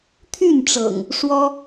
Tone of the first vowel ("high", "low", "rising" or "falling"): falling